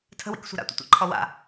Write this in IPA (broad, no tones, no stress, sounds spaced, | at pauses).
tʰ ə̤ w ḭ k sʷ ɛ̤ ɾ a̰ tʷ ḭ tʷ a̰ ǃʰ ɔ w a̰